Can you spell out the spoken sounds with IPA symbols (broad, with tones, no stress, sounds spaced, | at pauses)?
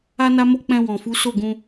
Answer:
a˦ n a˦ m o˦ k͡p ɛ̃˧ w ɔ̃˨ f u˨˦ s o˦˨ ɡ ũ˧